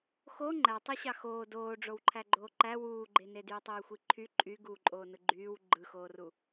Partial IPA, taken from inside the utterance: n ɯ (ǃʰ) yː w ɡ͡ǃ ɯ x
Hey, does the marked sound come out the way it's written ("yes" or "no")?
no